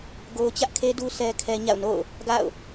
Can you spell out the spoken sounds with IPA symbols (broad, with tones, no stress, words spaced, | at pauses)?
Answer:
ɡo˦ʊ̯ t͡ɕä˦ʔkʰe˦du˦ sʰɛ˦kʰɛ˦ ɲa̰˦˨ʊ̯no̰˦˨ʊ̯ | ɡa̰˦˨ʊ̯